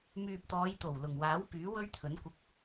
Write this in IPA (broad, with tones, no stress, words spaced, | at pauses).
myː˨p̚t̪ɔː˨˧jt̪o˨˩w lʊ˨˩ŋwaː˨˥wpyː˨˥ wɵ˥ɥt̪ʰɵ˨˥nkʷɪ˧k̚